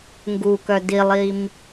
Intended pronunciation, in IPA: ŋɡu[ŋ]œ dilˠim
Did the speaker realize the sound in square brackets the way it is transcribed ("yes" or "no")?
no